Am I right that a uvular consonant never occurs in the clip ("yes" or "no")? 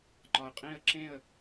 no